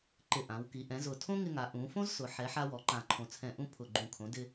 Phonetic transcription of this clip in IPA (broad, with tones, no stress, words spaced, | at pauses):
ǃɪ˨˩ ʔã˩˧wki˩˧ ʔɛ̃˩˧zʊ˨˩ tʰõ˥ŋɪ˧ŋa˩˧ ʔũ˩˧fõ˥zsʊ˩˧ ħɛ˩˧ħ a˧wɔ˩˧ǃã˨˩ǃʰõ˨˩ t͡sʰɛ̃˨˩ʔũ˧ pʰʊ˨˩ɡ͡ǃũ˨˩kʰõ˩˧ dɪ˧